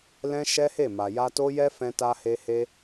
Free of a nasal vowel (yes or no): no